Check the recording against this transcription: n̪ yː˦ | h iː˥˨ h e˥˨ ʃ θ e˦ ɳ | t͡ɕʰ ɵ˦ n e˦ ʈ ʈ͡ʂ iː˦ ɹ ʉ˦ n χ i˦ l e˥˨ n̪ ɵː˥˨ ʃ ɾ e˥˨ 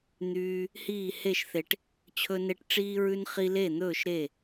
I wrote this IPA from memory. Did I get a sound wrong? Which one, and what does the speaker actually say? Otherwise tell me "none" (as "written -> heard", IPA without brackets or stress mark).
ɳ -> ʈ